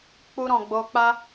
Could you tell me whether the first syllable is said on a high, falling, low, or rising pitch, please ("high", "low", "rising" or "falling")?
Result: high